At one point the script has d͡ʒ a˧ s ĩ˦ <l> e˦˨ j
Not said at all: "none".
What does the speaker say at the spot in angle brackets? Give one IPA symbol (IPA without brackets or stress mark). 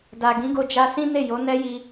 n